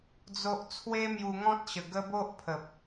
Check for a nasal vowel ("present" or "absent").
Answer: present